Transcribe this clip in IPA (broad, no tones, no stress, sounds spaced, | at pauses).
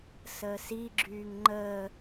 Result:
s əː s i ɡ͡ǁ yː ŋ ŋ͡ǃ əː